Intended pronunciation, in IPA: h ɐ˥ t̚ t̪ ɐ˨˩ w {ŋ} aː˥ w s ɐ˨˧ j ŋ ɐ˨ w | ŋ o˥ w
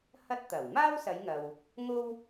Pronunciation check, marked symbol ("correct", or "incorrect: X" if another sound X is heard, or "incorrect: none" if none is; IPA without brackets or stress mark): incorrect: m